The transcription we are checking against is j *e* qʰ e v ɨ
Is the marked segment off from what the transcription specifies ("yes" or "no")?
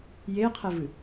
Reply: no